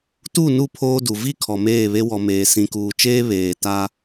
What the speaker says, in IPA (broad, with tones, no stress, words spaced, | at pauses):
tu˦˨nu˦˨pʰoː˦du˨ vi˦˨ kʰɔ˨meː˦˨βe˦ wɔ˨meː˨ sĩ˨kuː˨t͡ʃeː˦ βeː˨ta˦